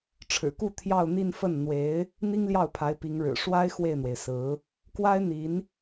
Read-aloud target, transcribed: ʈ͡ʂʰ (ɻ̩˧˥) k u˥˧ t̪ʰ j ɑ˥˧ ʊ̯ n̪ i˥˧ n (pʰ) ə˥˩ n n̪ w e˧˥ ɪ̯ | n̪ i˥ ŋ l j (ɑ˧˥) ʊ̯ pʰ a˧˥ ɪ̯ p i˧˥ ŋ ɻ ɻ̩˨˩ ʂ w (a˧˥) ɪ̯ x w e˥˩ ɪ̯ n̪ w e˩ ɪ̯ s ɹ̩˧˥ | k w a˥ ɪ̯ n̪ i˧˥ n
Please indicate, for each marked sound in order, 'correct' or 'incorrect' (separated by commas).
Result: incorrect, incorrect, incorrect, incorrect